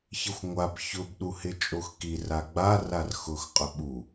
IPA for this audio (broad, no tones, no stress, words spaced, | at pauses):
çɪxʷŋʷab çʊb ɗuhɪt͡ʃʼoxkir aɡ͡ba rarxʊx qʼʊɓu